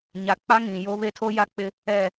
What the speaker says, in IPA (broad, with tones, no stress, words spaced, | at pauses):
ɲa˨˦ k͡pa˦ ŋĩ˨ jo˦ βe˦tʰo˦ja˦ k͡pɪ˦ | ɛ˦˨